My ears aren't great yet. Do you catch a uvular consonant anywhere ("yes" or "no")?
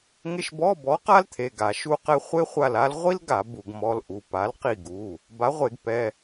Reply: yes